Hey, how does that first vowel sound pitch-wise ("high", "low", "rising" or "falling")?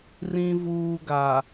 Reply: low